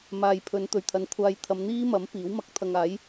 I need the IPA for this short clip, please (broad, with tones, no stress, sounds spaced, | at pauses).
m aː˨ j pʰ ɵ˨˧ n t̪ ɵ˨˩ ɥ t̪ʰ ɐ˨˧ n kʷʰ aː˧ j t̪ʰ ɐ˨˧ m n̪ iː˥ m ɐ˨˥ m p iː˨˥ w m ɐ˧ k̚ t̪ʰ ɐ˧ ŋ aː˨˥ j